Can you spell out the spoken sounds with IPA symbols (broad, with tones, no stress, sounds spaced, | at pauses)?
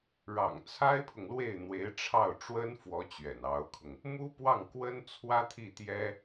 ɻ ɑ̰˨˩ ŋ t͡sʰ a˥ ɪ̯ pʰ ʊ˨ ŋ l w e˥˩ ɪ̯ n̪ w e˧˥ ɪ̯ ʈ͡ʂʰ ɑ˥˩ ʊ̯ ʈ͡ʂ w ə˥ n f w ɔ˧˥ t͡ɕ ɥ ɛ̰˨˩ n ɑ˧˥ ʊ̯ kʰ ʊ˧ ŋ | m u˥ p w ɑ˥˩ ŋ k w ə˥ n t͡sʰ w ä˥ t̪ʰ i˥˩ t̪ j ɛ˥